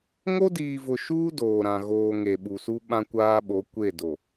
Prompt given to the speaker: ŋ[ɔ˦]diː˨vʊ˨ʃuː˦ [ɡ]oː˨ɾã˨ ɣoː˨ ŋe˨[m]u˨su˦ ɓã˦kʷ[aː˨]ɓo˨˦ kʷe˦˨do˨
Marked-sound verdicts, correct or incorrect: incorrect: o˦, incorrect: d, incorrect: ɓ, incorrect: aː˦

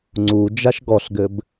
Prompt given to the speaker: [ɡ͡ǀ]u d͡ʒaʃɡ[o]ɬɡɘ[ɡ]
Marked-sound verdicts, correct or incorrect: incorrect: ŋ͡ǀ, incorrect: ɔ, incorrect: b

